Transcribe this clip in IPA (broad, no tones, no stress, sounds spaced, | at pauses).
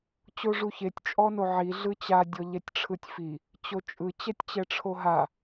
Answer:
t͡ɕ o ʐ u ç e tʲ t͡ʃʼ ɔ n o ʕ i ɮ ɯ t͡ɕ a dʲ ɔ ʎ ɛ tʲ ʈ͡ʂʰ ɯ tʲ f i | t͡ɕ o t͡ʃʼ ɯ t͡ɕ ɛ tʲ t͡ɕ ɛ ʈ͡ʂʰ o ɦ a